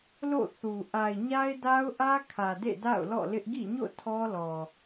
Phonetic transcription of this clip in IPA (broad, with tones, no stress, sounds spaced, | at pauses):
l o̰˦˨ θ u˨ ʔ a˨ ɪ̯ ɲ a˦ ɪ̯ d a˦ ʊ̯ ʔ ä˦ kʰ ä˨ d ḛ˦˨ d a̰˦˨ ʊ̯ l ɔ̰˦˨ l ɪ˦ ʔ ɡ ḭ˦˨ ɲ o̰˦˨ tʰ ɔ˦ l ɔ˨